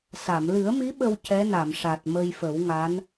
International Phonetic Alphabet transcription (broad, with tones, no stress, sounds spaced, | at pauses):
s a˨˩˨ m l ɨ˨˩˦ ə̯ m i˧˥ ɓ ə˧ w c ɛ˧˥ n a˨˩˨ m ʂ a˨˩ t̚ m ə˧ j f ə˨˩˦ w ŋ a˧˥ n